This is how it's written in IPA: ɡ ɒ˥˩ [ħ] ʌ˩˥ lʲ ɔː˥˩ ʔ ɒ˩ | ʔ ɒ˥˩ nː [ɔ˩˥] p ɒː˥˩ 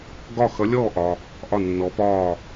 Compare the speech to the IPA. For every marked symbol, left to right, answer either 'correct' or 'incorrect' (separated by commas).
incorrect, correct